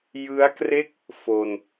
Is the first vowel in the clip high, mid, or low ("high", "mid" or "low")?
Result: high